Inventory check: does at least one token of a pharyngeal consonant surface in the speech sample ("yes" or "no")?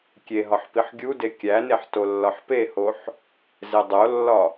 yes